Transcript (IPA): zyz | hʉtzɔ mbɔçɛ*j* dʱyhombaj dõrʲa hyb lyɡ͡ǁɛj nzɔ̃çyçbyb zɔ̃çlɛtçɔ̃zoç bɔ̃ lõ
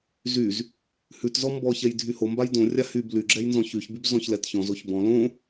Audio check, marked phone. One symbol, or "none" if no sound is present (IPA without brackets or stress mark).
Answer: j